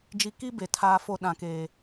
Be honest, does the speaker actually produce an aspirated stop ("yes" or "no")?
yes